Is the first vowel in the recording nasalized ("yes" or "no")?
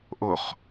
no